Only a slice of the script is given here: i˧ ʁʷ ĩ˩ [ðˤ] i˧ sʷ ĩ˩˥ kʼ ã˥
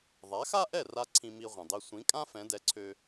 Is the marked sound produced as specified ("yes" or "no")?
no